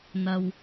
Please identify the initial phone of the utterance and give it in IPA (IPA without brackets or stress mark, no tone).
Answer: n̪